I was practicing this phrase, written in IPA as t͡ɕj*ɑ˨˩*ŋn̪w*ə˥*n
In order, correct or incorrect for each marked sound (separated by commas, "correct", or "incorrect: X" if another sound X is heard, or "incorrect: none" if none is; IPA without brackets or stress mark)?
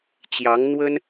incorrect: ɑ˧˥, correct